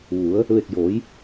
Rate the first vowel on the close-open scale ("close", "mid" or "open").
close